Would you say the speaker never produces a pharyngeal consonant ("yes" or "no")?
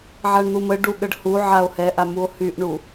no